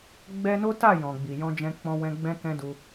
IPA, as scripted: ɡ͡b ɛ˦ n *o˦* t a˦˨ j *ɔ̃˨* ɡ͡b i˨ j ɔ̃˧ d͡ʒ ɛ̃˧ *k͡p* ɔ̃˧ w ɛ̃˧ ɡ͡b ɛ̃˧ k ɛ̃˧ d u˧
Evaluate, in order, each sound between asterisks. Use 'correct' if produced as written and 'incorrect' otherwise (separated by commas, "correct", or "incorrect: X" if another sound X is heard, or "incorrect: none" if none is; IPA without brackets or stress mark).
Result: correct, correct, correct